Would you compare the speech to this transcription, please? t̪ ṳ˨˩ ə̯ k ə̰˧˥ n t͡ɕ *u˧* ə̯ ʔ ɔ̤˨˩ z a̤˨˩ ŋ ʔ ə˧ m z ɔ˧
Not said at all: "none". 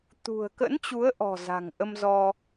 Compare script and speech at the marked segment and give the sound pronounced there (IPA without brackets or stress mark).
u˨˦